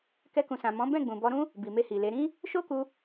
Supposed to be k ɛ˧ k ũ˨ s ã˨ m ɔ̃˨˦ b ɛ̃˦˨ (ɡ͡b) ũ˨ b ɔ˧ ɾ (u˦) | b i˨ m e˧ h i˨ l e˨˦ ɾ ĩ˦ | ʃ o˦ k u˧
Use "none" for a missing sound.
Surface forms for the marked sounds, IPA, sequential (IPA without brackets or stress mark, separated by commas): ɡ͡b, ũ˦